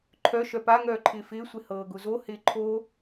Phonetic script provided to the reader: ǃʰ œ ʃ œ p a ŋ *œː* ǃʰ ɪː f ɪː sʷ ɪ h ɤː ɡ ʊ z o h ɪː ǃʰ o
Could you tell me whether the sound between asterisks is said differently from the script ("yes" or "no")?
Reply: no